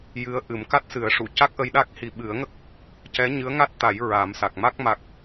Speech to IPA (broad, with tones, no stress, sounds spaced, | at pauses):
j ɨ˧˥ ə̯ ʔ ɨ˨˩˦ m k a˦˥ t̚ s ɨ˨˩˦ ə̯ ʂ u˨˩˨ c a˦˥ k̚ ʔ ə˧ j ɗ a˦˥ k̚ h i˨˩ ɓ ɨ˨˩˦ ə̯ ŋ ə˦˥ k̚ | c ɛ˧˥ ɲ ɨ˧˥ ə̯ ŋ a˦˥ t̚ t̪ a˨˩˦ j ɹ a˨˩˦ m s a˨˩ k̚ m a˦˥ k̚ m a˨˩ k̚